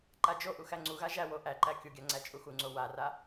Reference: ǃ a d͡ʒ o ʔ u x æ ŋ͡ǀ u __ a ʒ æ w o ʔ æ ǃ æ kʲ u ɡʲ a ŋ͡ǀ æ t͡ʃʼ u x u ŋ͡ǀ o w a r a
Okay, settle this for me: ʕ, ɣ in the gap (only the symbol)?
ɣ